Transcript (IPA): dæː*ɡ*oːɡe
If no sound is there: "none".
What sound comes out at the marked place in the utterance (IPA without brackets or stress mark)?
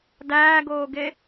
ɡ